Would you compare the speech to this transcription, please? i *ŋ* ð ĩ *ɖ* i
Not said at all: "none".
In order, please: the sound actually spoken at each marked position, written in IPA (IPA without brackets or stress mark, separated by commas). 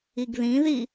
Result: ɡ, ð